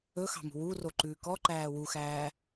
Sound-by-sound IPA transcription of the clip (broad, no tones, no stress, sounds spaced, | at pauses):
ɵ x ɑ̤ m ṳ w u r o ǃ ʉː k ɔ ǃ æː w u x æː